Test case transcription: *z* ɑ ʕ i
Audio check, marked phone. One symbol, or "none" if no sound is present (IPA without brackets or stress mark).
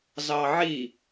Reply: z